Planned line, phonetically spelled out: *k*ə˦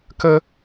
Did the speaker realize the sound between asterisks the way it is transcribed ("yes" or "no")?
yes